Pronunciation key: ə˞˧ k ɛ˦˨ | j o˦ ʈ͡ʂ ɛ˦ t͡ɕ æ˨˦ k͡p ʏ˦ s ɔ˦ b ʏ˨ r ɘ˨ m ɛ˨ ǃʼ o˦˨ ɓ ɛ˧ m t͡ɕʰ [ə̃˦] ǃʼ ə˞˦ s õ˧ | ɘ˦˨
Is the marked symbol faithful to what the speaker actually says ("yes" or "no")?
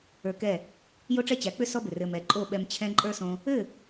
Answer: no